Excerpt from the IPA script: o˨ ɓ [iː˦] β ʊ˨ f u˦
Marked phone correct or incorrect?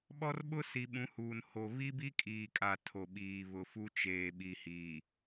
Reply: incorrect